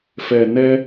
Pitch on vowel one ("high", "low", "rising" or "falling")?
low